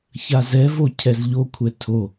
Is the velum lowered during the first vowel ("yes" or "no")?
no